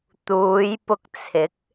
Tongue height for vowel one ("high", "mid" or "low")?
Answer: high